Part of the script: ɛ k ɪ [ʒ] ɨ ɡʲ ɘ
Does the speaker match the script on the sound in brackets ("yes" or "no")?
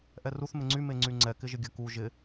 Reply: yes